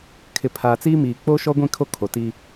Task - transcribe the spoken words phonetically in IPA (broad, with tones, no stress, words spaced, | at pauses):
kʰɪ˨pʰaː˨t͡siː˦miː˨ k͡poː˦ʃɔ˦ɡʷĩ˦˨kʰo˦ kʰo˨ti˦